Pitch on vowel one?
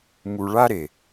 low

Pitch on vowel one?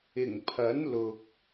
low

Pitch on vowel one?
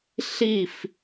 falling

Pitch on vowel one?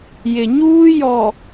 low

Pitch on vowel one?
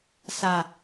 low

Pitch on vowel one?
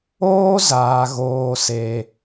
high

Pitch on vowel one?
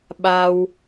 low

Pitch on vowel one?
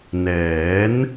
rising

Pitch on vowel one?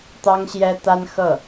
high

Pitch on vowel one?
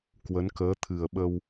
rising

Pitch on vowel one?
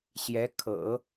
rising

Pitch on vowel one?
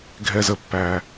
low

